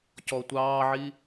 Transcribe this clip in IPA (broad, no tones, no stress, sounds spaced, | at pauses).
c ɔ tʷ ɑː ʕ i